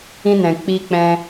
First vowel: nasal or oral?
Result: nasal